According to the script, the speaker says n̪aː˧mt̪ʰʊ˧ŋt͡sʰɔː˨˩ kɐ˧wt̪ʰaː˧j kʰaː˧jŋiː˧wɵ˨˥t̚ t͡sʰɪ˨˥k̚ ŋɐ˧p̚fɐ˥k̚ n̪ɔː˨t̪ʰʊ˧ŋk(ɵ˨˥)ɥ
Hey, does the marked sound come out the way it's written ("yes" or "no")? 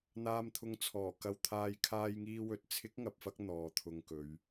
no